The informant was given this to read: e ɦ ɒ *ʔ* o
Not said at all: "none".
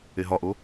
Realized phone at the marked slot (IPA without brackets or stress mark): ʔ